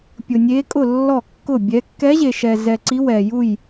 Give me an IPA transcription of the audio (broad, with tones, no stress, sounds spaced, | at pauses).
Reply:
pʲ ʊ˧ nʲ e˦˥ kʼ ʊ˥˧ lː ɔ˥˧ kː ʊ˥˧ bʲ ɛ˦˥ kː ɛ˦˥ ʑ e˧ ʃ ɛ˧ z ɛ˧ ǀ i˦˥ w ɛ˧ j u˥˧ j